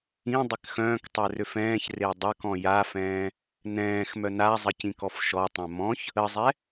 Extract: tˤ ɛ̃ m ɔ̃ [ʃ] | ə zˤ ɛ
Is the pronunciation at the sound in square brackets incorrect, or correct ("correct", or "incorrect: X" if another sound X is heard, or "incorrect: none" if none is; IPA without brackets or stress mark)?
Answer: incorrect: ç